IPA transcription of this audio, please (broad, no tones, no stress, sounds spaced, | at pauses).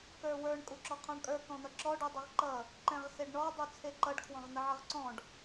k ə˞ w ə˞ ɳ kʼ u ǁ ɔ qʰ ɔ̃ ɳ kʼ ə˞ k ɔ̃ n̪ ʌ ǁ ɔ ɖ u dˤ ʌ ʁ ǃ ʌ | ǃ ɛ̃ ʁ s e ɖ ɳ ɔ dˤ u t͡sʰ e ǃ ʌ ɖ kʰ w ɔ̃ ʁ n̪ ə ʕ ʌ ʁ ǀ ɔ̃ ɖ